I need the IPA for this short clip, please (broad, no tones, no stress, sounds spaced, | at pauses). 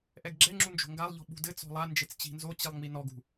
ʔ ɛ ɡ ɡ͡ǁ ɛ ŋ͡ǁ u n d͡ʒ o̤ ŋ ɡ a lˠ ʎ ɔ̤ ɓ ṳ d ɘ t͡s ɔ̤ lˠ a n d͡ʒ e t͡s t͡ɕ i̤ n z o t͡ɕ i lˠ ŋ͡m i n ɔ ɡ ṳ